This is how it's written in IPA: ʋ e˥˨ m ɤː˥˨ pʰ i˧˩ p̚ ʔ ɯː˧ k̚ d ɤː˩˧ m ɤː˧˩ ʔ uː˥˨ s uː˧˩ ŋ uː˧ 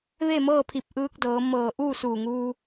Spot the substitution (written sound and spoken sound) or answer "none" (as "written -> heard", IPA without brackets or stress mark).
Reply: none